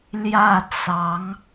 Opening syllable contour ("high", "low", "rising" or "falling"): falling